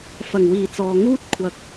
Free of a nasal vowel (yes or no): yes